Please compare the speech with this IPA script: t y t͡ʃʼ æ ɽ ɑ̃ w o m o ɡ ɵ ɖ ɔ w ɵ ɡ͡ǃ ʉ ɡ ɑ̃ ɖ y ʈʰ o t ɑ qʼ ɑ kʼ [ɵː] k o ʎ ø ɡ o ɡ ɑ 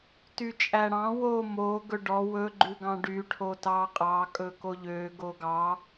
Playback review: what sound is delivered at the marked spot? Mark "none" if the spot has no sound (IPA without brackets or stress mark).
ɵ